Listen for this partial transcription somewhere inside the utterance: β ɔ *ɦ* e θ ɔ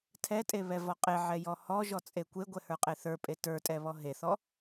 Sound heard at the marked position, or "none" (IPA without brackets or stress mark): ɦ